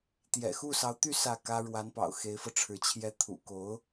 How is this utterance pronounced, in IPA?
t̪ j ɛ̰˨˩ x u˥˩ s ɑ˧˥ ʊ̯ t̪ y˥˧ s ä˥˩ k ä˥ ɻ w a˧˥ n p ɑ̰˨˩ ʊ̯ x e˧˥ ɪ̯ f ɤ˧ ʈ͡ʂʰ ɻ̩˧˥ t͡ɕʰ j ɛ˧˥ t̪ʰ ṵ˨˩ k o˧˥ ʊ̯

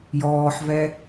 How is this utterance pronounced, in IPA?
j ɔː ħ v ɛ

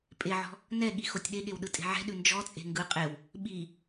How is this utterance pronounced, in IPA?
pʼ e ʕ ɔ̤ | n ɛ ɠ i x o tʲ ɗ e ɠ e w ɗ ɯ tʼ e̤ ʕ ɛ̤ ɗ ʉ n d͡ʒ ɔ t͡sʼ e̤ ŋ ɡ ɯ qʼ e w | ɓ i

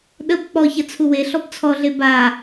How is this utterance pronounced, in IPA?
ɗ ə b k͡p ɔ ç ɐ t͡sʰ u w e ɬ ɔ b t͡sʰ ɔ ɮ e b a

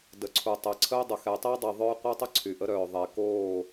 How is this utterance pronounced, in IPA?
d ə˨ ǀʰ u˨ tˤ ɛ˨ ǀʰ ə˦ o̯ dˤ ə˨ x ɛ˨ tˤ ɛ˦ dˤ i˨ ðˤ œː˦ qʷ œ˦ tˤ ə˦ ǀʰ yː˨ ʔ ə˦ ɾ œː˨ ðˤ e˨ k oː˦˨

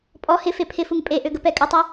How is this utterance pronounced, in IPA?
pʼ ɔ h ɪ f e pʰ ɪ f u ŋ pʼ e ʔ ø ɡ ə p ɛ kʼ ə tˤ o

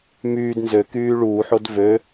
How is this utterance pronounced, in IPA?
m yː d n z ø k yː ɭ uː ħ o d v ø

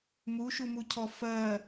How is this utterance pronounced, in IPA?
m u ʃ u m u cʰ ɔ f ɜ

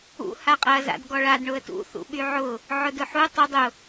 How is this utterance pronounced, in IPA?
ṵ h a qʼ ɐ z a̰ d ɡ ɔ ɭ a d ɳ ʊ ə̯ t ṵ θ ṵ ɓ y ʕ ʊ | ʕ ʊ d ʊ ħ u tˤ ʊ dˤ ʊ

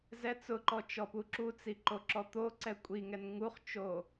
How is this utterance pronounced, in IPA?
z ɛ t͡s ʊ ǃ ɔ t͡ʃ ɔ p u ǁ u t͡s i ǃ o ǁ ɔ t̪ o ǀ ɛ kʷʼ i ŋ ɛ n ŋ u χ t͡ʃ o

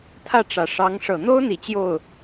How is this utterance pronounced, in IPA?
t̪ʰ ä˥˩ ʈ͡ʂ ä˨˩ ʂ ɑ˧˥ ŋ ʂ ɤ˨˩ n̪ o˥ ʊ̯ n̪ i˨˩ t͡ɕ j o˥˩ ʊ̯

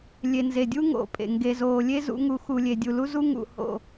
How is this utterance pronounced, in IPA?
lʲ e˨ n z e˨ dʲ u˦ ŋ o̰˨ pʼ ḛ˨ ŋ ɡ e˨ z oː˨ lʲ e˦ z ṵ˨˦ ŋ u˨˦ x u˨ lʲ e˨ dʲ u˨ l u˦ z u˦ ŋ ṵ˨ h o̰˨

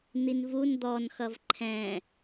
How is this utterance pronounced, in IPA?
n̪ i n v u n d̪ ɔ n x ʌ v ǃʰ ɛ̃

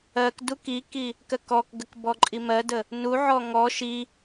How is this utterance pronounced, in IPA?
ɜ k d u k i k i | k ɜ k ɔ k ɡ ə k b ɔ ǃʼ i m ɜ d ə | n u ʕ ɔ ŋ ɔ ʃ i

